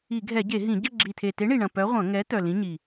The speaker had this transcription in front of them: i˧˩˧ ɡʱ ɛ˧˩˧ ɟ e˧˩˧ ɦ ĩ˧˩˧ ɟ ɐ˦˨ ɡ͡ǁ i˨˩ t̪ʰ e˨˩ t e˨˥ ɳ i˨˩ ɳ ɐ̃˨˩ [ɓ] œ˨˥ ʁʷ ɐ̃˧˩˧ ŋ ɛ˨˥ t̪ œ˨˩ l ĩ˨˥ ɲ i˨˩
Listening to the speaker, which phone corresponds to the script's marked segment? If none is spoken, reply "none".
p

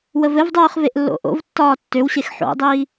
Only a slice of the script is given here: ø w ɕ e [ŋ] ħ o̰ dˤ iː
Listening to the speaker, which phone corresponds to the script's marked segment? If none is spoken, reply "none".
x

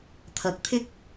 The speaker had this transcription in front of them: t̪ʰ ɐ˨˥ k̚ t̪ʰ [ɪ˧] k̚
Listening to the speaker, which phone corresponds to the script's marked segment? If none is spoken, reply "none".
ɪ˥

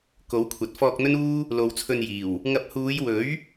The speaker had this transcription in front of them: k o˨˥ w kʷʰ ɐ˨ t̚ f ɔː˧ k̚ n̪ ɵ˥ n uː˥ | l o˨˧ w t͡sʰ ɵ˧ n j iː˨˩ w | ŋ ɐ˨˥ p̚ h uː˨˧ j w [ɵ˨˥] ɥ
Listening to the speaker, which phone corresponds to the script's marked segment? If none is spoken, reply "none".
ɵ˨˥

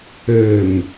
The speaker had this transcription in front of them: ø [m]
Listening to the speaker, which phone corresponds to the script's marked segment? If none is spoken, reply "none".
m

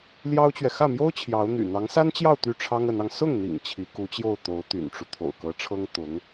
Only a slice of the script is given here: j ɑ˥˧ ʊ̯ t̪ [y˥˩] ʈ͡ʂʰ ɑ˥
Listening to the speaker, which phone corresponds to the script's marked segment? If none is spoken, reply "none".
y˥˩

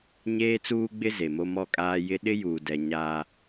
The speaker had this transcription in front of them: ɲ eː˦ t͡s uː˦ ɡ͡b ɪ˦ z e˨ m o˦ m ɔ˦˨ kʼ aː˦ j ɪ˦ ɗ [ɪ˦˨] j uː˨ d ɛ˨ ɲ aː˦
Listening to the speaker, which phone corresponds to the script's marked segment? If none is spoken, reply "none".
ɪ˦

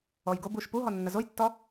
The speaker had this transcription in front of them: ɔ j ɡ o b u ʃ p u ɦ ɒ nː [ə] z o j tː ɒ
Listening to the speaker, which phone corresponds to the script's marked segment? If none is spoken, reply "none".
ə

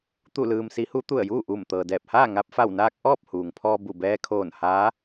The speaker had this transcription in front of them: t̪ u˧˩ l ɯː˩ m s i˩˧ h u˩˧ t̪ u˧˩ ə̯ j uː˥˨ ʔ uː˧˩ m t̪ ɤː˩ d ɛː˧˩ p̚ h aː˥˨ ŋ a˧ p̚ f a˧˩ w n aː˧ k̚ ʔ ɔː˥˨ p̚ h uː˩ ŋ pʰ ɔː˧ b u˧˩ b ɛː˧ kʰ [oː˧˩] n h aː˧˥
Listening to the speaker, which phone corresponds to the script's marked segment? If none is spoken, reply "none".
oː˧˩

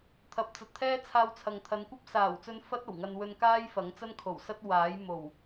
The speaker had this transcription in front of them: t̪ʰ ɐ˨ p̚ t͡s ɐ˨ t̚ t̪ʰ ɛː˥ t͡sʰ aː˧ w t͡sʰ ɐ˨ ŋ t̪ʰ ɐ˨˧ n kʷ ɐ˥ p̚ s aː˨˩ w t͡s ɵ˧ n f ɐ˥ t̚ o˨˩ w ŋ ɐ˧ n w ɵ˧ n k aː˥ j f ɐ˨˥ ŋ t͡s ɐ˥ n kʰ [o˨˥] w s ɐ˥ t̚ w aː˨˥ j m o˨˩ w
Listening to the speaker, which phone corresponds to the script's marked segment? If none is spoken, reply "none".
o˨˩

